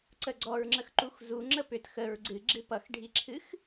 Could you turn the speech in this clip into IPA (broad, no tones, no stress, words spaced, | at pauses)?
ǀəɡ͡ǀɔɹŋ͡ǁəxǃux zuŋ͡ǁə pʏt xəɹ ɡ͡ǀɨɡ͡ǁɨ pʌxɖʱiǁʰɨx